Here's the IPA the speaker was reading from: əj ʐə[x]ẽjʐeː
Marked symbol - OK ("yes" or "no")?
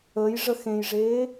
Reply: yes